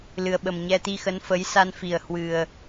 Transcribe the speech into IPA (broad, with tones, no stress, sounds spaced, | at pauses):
l ɨ˨˩ ə̯ ɓ ə˨˩ m ɲ ɛ˧ t̪ i˧ x ə˨˦ n f ə˨˦ j s a˧ n f i˨˩ ə̯ h w ɨ˨˩ ə̯